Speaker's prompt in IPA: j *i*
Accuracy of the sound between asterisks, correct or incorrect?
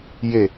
incorrect